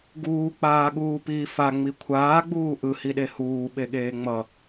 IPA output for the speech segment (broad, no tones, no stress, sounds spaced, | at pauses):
ɡ uː k͡p aː ɠ uː p iː f a ŋ͡m i kʷʰ aː ɡ͡b uː ʔ ɯ h i ɗ e h uː ɓ e ɠ eː ŋ͡m ʌ